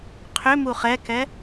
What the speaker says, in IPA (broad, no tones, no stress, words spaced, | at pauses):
qʰʏ muχɛkɛ